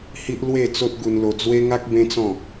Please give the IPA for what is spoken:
h i˦ ʔ l w e˥˧ t͡s o˦ t̚ ɡ u˧ n l o˧ d͡z w e˦ ŋ a˦ k̚ b ẽ˦ t͡s ɔ̃˥˧

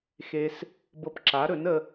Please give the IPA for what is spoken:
x e˧ s | b ɤ˧ p ǁ a˩˥ ɾ ɵ˩˥ n ə˧

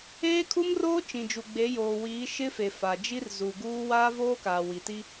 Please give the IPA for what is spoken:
eː˦ kʰ u˦ m r oː˦ t͡ʃ ĩ˨ d͡ʒ u˨ ɡ͡b e˨˦ j oː˨ w iː˨˦ ʃ ɪ˦ f e˨ f a˨ d͡ʒ i˦ r z u˨ ɡ uː˦ w aː˦ v oː˦ k aː˨ w i˨ t i˦

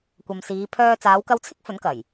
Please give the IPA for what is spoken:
kʷ ɐ˨ m s iː˨˧ pʰ œː˧ t͡s aː˨˧ w k ɐ˧ w t͡sʰ ɪ˥ k̚ f ɵ˨˥ n k ɐ˨˩ j

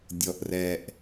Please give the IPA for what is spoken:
dʲ ɔ˩ ʔ r ɛ˩ ʔ

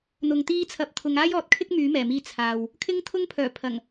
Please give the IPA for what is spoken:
n̪ ʊ˧ ŋ t̪ iː˥ t͡sʰ ɐ˨˥ p̚ t̪ʰ ʊ˨˧ ŋ aː˥ j ɔː˨˥ t̚ kʰ ɪ˥ k̚ m yː˨˥ m ɛː˨˩ m iː˧ t͡sʰ aː˨ w | kʰ ɪ˥ ŋ t̪ʰ ʊ˥ ŋ pʰ œː˨˩ pʰ ɐ˨˩ ŋ

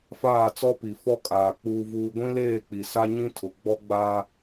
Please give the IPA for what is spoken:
f aː˦˨ t͡s ɔ˦ p i˨ f ɔ˦ kʼ aː˨ k͡p uː˦ v uː˦ ɡʷ ĩ˦ l eː˦˨ k͡p i˨ s a˦ ɲ ĩ˦ tʰ ʊ˨ ɡ͡b ɔ˦ ɡ͡b a˦

